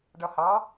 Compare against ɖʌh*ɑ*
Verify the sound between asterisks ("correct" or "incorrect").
correct